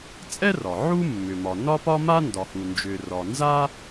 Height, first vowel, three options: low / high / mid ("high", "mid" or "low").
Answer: mid